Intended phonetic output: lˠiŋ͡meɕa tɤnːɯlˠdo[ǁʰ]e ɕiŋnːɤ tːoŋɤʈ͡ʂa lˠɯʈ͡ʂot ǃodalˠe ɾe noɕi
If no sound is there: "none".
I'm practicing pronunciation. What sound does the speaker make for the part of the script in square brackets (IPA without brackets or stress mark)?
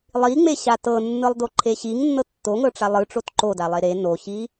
ǃʰ